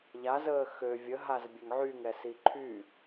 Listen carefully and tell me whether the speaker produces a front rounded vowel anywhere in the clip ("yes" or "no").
yes